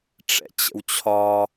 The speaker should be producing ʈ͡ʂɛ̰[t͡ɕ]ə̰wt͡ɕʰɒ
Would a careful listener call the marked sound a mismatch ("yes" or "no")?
no